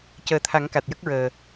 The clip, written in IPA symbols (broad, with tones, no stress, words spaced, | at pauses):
cəː˨˩t̪ʰa˨˩˦ŋ ka˨˩t̚jə˦˥k̚ɹəː˨˩